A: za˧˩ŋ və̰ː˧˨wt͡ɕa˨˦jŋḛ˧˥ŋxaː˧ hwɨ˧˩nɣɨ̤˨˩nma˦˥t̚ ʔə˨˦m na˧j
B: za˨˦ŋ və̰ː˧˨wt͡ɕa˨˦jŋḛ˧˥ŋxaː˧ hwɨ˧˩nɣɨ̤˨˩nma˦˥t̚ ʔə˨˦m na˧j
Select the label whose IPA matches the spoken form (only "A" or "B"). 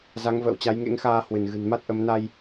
B